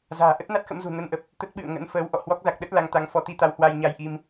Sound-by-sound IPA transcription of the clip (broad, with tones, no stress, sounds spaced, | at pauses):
z a̤ː˨˩ ʔ ə˦˥ t̚ n a˦˥ t̚ x ə̰˧˥ m z ṳ˨˩ n ə˧ n ʔ ə˨˩ p̚ | t̪ ə˦˥ t̚ ɓ ɨ̰˧˨ ə̯ ŋ ə̰˧˥ n f əː˨˦ w ʔ ɔ̰˧˨ h w ɔ˦˥ k̚ z a˨˩ k̚ ɗ ə˦˥ t̚ l a˨˦ ŋ t̪ a˨˦ ŋ f ɔ˨˦ t̪ i˧ t̪ a˨˦ w h w a˧ j ɲ a˧ j ʔ i˧ m